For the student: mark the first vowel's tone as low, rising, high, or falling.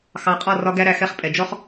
rising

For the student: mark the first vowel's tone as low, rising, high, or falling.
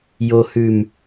low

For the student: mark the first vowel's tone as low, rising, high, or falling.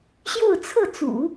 falling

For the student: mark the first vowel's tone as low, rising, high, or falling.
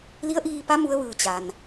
rising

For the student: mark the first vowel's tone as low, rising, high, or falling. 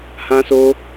high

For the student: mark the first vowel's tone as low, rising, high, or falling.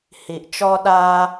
low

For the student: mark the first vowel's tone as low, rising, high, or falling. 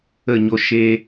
falling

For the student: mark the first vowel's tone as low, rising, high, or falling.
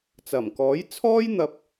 low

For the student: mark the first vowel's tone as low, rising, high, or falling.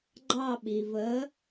falling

